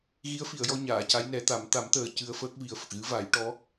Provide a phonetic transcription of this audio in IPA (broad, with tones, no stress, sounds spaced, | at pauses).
ɣ i˧˥ ə̯ f i˨˩˨ ə̯ j ɔ˧ ɲ aː˨˩˨ c a˧˥ j n ɛ˨˩˦ t̪ a˨˩˦ m t̪ a˨˩˦ m t̪ əː˨˩ c ɨ˧ ə̯ f əː˦˥ k̚ v i˨˩ ə̯ f ə˨˩ k̚ ɣ ɨ˧˥ v a˨˩˦ j ʈ ɔ˧˥